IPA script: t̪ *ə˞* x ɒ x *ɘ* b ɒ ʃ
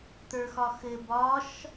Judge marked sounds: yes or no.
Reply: yes, yes

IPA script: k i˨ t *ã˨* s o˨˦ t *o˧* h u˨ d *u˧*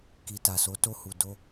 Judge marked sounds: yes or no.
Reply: no, yes, no

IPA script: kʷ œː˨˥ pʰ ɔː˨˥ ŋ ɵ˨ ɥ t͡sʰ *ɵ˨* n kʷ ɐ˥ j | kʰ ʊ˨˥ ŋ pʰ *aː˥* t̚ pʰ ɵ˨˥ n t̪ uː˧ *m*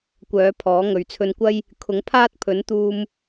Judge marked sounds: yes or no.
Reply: no, yes, yes

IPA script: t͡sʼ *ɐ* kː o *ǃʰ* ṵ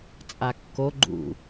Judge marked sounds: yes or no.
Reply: no, no

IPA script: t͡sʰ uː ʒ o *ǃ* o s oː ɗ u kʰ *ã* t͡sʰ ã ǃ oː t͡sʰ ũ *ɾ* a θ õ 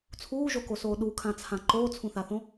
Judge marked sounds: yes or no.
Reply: no, yes, no

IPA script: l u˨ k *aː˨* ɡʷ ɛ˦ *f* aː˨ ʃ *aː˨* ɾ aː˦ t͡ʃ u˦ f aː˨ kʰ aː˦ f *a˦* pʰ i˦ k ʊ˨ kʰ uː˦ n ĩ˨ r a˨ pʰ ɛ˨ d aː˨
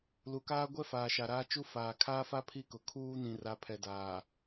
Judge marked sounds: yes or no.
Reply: no, yes, no, yes

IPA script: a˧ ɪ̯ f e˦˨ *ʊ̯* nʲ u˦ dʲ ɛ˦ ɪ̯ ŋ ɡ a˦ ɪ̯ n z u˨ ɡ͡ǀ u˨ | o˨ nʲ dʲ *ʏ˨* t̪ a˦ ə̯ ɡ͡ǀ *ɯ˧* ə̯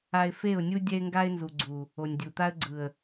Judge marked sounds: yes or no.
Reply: yes, no, no

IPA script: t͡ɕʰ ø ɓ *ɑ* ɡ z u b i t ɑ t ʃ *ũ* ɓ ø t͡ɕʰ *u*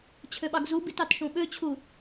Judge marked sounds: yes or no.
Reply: yes, yes, yes

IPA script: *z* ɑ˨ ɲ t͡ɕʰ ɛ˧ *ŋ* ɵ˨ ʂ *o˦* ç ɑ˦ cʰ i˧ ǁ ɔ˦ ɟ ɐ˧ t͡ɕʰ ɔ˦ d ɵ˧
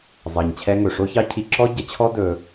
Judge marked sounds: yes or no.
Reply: no, yes, yes

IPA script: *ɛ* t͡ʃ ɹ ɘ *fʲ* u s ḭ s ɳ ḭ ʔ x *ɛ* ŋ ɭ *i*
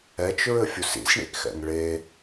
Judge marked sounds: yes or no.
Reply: yes, yes, no, no

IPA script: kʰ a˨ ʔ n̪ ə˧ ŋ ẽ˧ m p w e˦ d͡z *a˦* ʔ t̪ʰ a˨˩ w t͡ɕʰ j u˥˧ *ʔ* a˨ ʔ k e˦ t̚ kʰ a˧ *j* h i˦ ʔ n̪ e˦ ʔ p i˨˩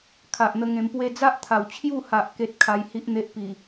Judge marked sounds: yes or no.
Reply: yes, no, yes

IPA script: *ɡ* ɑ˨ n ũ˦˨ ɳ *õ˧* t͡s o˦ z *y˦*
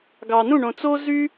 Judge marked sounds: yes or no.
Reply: yes, no, yes

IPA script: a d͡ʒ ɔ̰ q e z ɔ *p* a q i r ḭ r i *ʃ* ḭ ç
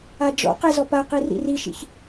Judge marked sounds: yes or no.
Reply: yes, yes

